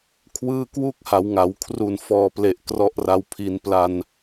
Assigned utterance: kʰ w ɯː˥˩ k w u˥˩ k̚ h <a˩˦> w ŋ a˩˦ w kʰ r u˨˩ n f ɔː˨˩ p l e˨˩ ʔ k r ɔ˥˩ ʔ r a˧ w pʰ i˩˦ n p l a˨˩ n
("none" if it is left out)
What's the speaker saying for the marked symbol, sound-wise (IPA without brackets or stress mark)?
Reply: a˩˦